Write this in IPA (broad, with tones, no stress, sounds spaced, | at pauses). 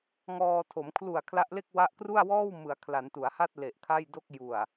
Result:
ŋ ɔː˧ tʰ o˩˦ m kʰ l u˨˩ a̯ kʰ l a˦˥ ʔ l e˥˩ k̚ w a˥˩ ʔ k r u˥˩ a̯ w ɔː˥˩ w m ɯ˩˦ a̯ kʰ l a˩˦ n t u˩˦ a̯ h a˥˩ t̚ l e˨˩ ʔ kʰ a˥˩ j d o˥˩ k̚ j u˨˩ a̯